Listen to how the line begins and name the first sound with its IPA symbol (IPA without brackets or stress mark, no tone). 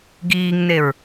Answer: ɡ